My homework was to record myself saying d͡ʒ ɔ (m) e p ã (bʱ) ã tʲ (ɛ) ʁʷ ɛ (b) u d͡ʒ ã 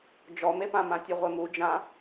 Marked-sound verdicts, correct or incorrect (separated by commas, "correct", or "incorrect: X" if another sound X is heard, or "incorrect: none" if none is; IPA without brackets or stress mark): correct, incorrect: m, incorrect: ɨ, incorrect: m